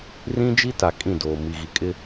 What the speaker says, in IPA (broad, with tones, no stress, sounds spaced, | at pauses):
r ĩ˦ d͡ʒ i˦ t a˨ kʼ ĩ˦˨ d oː˨ m i˨ ɣ i˨ kʼ ɪ˦